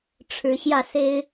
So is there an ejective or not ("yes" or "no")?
no